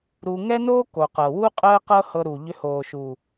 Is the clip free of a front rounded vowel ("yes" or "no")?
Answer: no